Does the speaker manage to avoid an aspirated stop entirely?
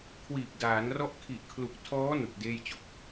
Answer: no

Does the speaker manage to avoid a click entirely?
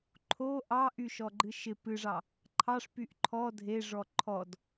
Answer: no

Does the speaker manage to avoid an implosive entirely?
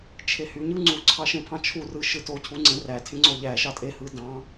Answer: yes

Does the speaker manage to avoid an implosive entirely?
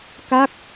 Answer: yes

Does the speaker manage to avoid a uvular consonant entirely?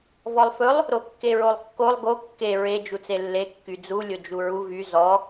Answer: yes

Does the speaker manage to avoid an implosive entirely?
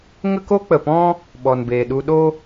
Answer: no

